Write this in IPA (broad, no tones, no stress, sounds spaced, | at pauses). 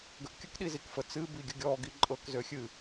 ɡ ə ʔ kʲ ə k ɗ i z i k f ə t͡s ɨ b i ɡʲ ə ɡʲ ɔ ɡ i ǃʼ ɤ k z ø xʲ ɨ